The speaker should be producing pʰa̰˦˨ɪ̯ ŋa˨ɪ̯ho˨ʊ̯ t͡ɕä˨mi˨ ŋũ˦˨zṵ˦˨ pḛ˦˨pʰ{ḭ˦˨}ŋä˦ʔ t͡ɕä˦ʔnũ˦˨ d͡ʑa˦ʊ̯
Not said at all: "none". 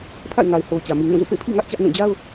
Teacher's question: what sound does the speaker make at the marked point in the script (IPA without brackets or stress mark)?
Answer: ḭ˦˨